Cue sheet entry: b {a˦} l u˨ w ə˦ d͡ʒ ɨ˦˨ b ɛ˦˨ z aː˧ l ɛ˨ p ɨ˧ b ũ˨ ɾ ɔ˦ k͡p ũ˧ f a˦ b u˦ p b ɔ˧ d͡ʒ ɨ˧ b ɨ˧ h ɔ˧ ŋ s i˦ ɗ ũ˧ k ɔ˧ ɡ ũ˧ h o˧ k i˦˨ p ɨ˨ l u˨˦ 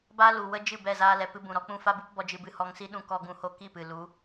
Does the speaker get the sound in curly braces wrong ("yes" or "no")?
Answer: no